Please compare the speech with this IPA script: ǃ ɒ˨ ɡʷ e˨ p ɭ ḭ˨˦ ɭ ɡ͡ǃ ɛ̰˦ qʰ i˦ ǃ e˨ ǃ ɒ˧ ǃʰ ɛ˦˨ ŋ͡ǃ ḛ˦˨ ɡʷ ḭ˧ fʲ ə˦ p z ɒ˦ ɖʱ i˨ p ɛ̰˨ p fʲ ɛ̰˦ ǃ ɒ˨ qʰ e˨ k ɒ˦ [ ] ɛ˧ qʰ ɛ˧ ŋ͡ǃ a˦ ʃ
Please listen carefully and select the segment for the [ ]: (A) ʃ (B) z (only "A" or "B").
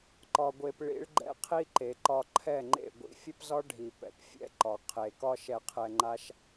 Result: A